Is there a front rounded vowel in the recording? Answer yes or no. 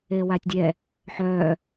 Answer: yes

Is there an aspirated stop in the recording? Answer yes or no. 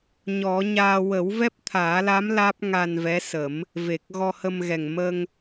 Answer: yes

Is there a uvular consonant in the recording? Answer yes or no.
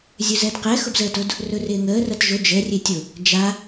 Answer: yes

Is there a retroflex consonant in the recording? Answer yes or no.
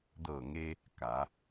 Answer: no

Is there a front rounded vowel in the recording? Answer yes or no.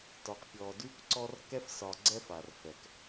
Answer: no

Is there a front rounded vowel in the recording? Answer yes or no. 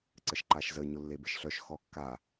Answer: yes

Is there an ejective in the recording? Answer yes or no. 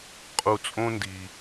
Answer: yes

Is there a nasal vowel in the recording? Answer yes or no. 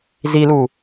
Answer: no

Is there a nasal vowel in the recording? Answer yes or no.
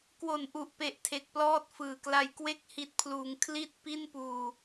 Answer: no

